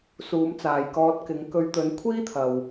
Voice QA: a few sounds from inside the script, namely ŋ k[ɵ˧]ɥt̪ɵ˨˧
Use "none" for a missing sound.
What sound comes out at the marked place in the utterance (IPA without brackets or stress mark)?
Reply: ɵ˧